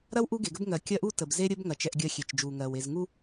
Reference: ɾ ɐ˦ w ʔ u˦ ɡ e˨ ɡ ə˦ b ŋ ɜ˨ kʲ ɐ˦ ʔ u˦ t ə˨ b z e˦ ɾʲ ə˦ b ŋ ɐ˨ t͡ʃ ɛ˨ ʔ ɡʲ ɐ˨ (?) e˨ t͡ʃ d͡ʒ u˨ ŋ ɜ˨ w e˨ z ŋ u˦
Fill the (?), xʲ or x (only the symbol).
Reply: xʲ